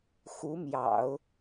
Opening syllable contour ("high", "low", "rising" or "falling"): rising